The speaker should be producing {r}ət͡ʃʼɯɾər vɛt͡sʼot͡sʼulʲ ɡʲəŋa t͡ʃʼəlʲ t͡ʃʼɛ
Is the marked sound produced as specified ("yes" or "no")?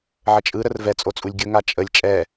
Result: no